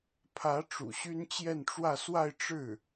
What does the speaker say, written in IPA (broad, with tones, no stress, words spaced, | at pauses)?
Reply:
pʰä˧˥ ʈ͡ʂṵ˨˩ɕy˥nt͡ɕjɛ˥˧nʈ͡ʂwä˥˧ swa˥˧ɪ̯ʈ͡ʂɻ̩˥˩